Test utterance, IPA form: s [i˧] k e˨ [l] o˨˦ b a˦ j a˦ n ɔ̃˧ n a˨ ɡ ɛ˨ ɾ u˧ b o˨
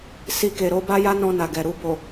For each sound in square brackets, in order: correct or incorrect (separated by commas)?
correct, incorrect